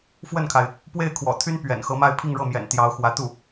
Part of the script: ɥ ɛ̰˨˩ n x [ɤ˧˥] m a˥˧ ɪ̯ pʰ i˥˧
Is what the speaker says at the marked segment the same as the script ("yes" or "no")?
yes